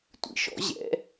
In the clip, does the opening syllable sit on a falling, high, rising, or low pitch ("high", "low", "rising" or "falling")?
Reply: low